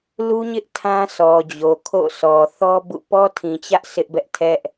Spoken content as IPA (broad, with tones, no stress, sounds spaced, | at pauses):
l u˦ ɲ ɪ˦ ʔ tʰ ã˦ sʰ ɔ˨ d͡ʑ o˨ kʰ o̰˦˨ sʰ ɔ˨ θ ɔ˦ b ṵ˦˨ p ɔ˦ tʰ ĩ˨ t͡ɕ ä˦ ʔ sʰ ɪ˦ ʔ b ɛ˦ ʔ tʰ ɛ˦ ʔ